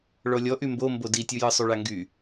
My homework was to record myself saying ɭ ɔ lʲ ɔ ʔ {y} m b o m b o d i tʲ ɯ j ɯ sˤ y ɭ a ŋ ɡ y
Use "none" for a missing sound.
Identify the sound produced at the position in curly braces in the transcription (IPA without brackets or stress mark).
y